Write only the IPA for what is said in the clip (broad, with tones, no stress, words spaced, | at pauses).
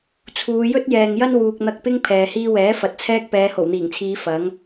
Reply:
t͡sʰuː˨˧ jɵ˥t̚jɛː˨ŋjɐ˥n wuː˨k̚n̪ɐ˧k̚pɪ˥ŋ pʰɛː˨hiː˥ wɛː˨˥ fɐ˨t̚t͡sʰɛː˥k̚pɛː˨˧ ho˨˩wn̪iː˨˩ŋt͡sʰiː˨˧ fɐ˨˥ŋ